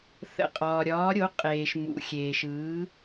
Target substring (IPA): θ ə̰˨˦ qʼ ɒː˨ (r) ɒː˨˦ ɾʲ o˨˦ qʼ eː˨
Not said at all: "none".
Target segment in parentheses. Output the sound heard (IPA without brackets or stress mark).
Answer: ɾʲ